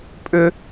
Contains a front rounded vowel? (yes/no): yes